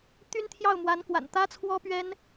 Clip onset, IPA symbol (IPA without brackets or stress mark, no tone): t̪